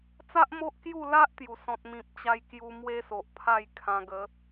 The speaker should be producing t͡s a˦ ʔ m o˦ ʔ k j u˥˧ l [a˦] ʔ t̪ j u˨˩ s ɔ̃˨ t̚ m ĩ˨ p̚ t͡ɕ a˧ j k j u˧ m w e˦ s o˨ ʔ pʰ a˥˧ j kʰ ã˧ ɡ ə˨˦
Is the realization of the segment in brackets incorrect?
no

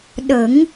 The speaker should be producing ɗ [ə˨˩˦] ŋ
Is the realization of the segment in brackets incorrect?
no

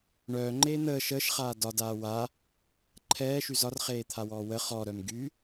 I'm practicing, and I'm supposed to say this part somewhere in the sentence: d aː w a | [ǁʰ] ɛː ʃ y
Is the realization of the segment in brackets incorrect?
yes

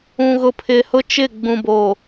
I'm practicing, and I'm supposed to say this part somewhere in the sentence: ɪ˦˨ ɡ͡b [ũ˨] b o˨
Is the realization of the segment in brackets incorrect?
no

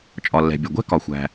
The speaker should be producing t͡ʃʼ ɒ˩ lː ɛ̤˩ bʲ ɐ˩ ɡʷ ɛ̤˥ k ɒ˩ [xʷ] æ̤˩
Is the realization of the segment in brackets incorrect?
no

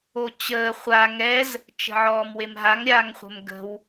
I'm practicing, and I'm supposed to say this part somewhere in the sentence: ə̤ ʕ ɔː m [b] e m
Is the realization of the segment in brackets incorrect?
yes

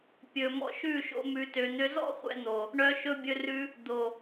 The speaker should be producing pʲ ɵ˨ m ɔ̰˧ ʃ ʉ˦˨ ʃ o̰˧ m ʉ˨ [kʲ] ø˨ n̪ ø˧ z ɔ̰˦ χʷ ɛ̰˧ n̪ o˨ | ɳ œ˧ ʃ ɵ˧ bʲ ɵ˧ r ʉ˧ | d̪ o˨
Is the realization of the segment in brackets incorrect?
yes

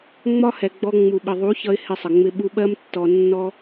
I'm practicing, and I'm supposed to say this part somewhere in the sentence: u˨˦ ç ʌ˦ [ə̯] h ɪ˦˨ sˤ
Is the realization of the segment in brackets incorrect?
yes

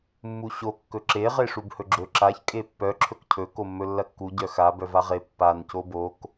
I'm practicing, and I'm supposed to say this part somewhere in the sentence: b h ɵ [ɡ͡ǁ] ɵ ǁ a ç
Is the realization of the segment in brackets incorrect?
no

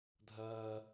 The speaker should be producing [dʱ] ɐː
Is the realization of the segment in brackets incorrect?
no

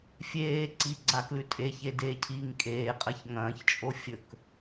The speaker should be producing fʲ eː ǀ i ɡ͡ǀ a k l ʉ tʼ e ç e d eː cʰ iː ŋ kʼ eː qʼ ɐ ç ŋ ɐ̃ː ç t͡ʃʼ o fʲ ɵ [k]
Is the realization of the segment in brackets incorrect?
no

